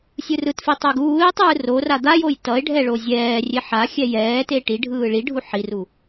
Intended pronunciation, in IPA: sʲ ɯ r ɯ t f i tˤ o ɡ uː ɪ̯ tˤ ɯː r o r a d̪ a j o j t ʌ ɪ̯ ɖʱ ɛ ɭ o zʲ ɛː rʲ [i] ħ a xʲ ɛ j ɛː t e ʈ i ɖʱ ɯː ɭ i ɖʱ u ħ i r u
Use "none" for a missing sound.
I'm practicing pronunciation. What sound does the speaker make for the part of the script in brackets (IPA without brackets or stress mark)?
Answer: e